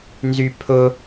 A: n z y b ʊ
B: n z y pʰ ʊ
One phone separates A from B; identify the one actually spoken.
B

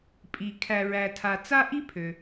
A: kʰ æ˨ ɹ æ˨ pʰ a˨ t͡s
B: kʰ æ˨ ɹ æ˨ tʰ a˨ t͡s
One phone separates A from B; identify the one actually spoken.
B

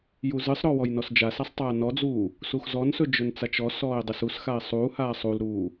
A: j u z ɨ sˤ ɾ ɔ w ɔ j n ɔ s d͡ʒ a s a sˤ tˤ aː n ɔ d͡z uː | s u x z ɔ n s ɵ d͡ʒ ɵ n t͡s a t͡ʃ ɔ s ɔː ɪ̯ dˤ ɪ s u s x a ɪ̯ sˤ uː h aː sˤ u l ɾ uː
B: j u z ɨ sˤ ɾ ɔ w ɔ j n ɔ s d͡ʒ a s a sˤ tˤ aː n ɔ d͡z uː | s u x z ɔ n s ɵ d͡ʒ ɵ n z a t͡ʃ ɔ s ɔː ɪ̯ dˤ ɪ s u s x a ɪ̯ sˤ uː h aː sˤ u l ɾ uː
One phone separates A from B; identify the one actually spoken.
A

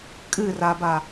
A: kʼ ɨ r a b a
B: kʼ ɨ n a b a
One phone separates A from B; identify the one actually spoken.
A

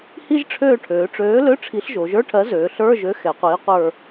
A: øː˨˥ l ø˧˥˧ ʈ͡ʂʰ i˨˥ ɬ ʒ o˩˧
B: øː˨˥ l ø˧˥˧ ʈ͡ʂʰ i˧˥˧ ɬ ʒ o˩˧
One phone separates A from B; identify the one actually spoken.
A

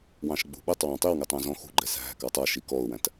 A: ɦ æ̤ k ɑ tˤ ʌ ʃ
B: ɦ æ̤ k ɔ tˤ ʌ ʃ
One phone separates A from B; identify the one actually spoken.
A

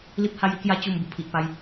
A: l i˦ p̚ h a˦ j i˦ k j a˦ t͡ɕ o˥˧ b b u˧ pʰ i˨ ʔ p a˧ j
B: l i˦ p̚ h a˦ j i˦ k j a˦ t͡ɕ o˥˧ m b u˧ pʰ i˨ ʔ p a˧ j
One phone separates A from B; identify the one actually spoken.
B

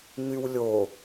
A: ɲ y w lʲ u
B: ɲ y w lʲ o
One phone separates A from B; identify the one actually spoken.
B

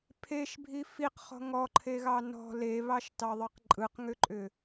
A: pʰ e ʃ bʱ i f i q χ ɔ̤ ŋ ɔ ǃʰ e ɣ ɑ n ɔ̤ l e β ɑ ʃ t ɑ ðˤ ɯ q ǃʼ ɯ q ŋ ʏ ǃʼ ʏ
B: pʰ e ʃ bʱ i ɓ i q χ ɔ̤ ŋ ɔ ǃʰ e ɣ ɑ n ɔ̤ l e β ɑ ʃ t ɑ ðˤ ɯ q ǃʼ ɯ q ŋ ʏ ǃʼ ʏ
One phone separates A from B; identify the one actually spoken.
A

